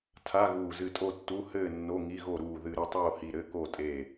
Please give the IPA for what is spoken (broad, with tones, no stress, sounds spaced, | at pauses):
tʰ a˧˥˧ ɣ uː˧˩ z ɨ˧˩ tʼ o˥˨ tː u˧˥˧ h ɘː˥˨ nː o˧˥˧ ŋ i˧˥˧ ɣ o˥˨ ɾ uː˧˩ ð ɨ˧˩ ɾ ɨ˥˨ tˤ oː˥˨ h i˧˩ ɾ ɘ˧˥˧ k o˥˨ tʼ e˧˩